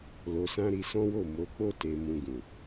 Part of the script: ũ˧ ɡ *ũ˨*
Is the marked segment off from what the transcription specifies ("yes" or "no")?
no